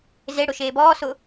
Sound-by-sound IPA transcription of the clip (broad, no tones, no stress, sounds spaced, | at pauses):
z e ɽ ʊ ʃ eː b ɔː s ʊ